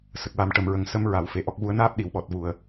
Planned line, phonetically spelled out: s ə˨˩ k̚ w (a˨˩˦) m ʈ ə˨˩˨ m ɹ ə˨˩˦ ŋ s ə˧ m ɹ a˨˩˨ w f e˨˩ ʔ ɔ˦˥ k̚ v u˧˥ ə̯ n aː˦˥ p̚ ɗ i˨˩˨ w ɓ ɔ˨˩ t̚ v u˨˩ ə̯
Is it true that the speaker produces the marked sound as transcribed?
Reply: yes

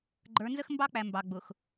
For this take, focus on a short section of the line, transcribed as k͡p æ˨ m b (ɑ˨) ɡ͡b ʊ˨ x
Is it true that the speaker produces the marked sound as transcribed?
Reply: yes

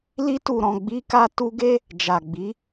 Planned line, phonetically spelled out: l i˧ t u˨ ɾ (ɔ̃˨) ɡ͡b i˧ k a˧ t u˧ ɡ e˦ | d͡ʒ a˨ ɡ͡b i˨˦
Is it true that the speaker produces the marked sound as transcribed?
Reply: yes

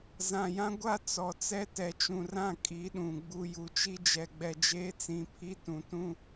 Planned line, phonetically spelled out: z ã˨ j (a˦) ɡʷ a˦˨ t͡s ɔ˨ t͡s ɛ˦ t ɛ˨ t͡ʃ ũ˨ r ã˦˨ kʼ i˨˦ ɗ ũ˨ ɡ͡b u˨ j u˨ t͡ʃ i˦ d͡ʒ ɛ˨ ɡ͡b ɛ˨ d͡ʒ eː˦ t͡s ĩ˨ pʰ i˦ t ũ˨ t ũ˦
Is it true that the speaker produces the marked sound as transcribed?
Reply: no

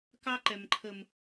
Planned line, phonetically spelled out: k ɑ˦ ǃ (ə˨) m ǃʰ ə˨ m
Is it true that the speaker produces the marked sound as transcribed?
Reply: no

